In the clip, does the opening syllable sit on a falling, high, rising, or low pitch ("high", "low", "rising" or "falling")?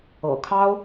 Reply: low